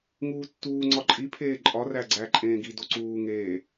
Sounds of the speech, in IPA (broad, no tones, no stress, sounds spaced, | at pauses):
ŋ uː tː uː ŋ͡ǀ ɒ ǃʼ i pʰ eː ǃʼ ɒ r æ ɡ͡ǀ æ ǃʼ ẽː ɡ i d o ǀ uː ŋ eː